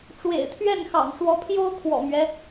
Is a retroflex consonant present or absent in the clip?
present